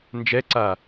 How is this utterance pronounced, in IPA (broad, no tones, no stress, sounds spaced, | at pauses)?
n d͡ʒ ɛ ǀ a